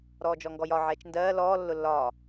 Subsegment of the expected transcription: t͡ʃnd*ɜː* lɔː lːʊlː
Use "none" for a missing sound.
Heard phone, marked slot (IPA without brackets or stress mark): ɜː